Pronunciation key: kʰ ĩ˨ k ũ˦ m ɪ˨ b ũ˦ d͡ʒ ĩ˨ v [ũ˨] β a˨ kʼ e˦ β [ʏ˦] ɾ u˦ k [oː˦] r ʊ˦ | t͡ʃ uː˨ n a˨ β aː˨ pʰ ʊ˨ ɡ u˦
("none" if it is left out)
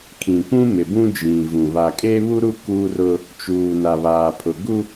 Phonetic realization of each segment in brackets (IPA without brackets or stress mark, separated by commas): ũ˨, u˦, uː˦